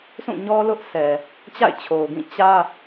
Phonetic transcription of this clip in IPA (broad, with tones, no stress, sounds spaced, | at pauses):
sʰ ũ˦˨ ɲ ɔ˦ l ʊ˦ ʔ s ɛ˨ | t͡ɕ a̰˦˨ ɪ̯ t͡ɕʰ o˨ ʊ̯ ɡ ĩ˦˨ t͡ɕ ä˦